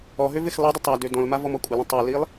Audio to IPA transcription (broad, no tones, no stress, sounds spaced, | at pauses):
ɔ ɦ ø v ɪ x lˠ i dˤ ə tˤ a d ø d ɔ̃ l m a v ɔ m ɔ kʷʼ ə l ə̃ tˤ ø l i lˠ